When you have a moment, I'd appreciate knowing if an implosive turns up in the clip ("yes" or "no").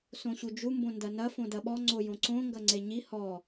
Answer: yes